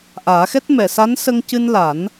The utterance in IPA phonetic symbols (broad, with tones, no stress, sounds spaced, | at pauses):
ʔ aː˨˩˦ x ɛ˦˥ t̚ m ɛ˨˩˨ s a˧˥ n s ə˧ ŋ c ɨ˧ n l a˨˩˦ n